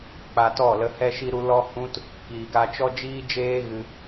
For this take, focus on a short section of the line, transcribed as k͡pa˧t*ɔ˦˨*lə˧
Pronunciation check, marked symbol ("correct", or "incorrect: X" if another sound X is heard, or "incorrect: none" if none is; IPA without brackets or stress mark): correct